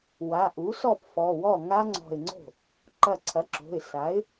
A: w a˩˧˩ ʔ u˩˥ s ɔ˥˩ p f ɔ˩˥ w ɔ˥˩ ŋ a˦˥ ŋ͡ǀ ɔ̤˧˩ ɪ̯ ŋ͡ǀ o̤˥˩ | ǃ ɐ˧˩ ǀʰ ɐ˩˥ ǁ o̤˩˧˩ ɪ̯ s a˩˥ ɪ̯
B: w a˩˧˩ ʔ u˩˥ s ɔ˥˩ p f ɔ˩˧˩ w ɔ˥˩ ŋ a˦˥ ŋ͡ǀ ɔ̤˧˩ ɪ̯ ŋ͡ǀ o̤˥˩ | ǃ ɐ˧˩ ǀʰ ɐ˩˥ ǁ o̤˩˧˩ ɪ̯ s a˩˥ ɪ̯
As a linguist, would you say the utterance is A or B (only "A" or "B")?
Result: B